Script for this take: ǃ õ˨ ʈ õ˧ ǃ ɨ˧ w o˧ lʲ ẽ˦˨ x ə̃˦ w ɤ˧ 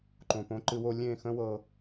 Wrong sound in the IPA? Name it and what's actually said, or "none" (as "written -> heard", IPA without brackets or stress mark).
ʈ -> p